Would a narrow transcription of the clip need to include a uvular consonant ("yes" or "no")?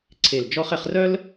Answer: yes